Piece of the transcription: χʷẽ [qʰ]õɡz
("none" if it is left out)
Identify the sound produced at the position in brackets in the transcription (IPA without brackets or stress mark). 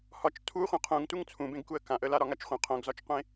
qʰ